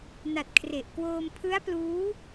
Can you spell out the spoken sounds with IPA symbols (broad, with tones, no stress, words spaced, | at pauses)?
na˨˩t̚kʰre˨˩ʔkwoː˧m pʰɯ˦˥a̯pluː˦˥